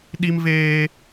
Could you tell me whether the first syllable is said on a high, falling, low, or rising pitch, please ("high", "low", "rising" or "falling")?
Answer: high